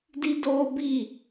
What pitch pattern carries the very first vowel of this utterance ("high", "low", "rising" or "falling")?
high